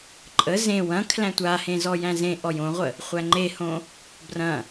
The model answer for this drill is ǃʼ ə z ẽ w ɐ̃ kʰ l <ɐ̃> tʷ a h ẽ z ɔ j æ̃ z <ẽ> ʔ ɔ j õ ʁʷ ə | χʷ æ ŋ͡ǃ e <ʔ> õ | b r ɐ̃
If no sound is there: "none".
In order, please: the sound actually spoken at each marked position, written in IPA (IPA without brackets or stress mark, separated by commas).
æ̃, ẽ, h